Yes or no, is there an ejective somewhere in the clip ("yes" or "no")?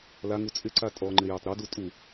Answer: yes